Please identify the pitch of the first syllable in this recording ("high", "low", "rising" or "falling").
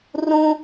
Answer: high